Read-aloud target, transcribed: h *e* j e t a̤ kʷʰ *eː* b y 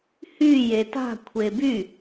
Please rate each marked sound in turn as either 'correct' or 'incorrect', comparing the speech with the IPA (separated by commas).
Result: incorrect, incorrect